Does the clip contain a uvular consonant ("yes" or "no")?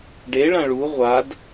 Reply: yes